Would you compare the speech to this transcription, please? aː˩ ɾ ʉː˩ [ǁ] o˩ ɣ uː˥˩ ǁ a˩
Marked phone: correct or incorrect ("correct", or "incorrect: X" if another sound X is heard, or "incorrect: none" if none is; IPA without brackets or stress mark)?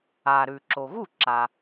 correct